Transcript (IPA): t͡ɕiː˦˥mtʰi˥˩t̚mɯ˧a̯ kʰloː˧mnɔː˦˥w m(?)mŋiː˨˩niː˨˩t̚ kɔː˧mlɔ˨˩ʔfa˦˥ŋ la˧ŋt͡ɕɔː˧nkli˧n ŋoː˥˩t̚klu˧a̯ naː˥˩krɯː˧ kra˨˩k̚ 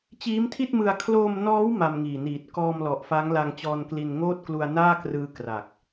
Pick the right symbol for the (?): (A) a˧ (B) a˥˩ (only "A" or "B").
A